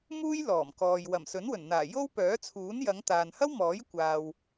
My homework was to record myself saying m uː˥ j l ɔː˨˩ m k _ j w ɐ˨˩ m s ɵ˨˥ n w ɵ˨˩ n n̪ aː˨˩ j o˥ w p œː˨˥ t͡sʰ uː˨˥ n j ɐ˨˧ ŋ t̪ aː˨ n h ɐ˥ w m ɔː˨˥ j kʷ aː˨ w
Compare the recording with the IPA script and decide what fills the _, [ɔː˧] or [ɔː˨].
ɔː˨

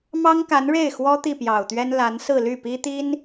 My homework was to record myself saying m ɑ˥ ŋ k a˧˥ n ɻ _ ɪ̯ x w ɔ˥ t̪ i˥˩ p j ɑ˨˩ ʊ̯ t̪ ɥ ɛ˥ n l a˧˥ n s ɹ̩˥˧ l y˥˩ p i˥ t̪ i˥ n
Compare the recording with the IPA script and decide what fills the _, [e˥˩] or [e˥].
e˥˩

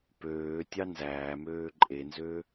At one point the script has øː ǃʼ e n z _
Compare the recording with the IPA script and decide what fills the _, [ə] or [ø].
ø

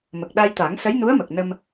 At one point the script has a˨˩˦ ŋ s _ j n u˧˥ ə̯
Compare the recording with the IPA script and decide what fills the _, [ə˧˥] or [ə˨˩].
ə˧˥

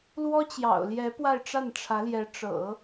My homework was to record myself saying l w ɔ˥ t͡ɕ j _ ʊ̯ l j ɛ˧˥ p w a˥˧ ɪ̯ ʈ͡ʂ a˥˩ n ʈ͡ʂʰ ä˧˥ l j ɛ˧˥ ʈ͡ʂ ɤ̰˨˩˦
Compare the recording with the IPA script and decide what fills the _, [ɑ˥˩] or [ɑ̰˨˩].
ɑ̰˨˩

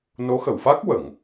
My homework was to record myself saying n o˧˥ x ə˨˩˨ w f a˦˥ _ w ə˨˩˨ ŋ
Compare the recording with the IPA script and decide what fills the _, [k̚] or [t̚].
k̚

